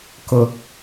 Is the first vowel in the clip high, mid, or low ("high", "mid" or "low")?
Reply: high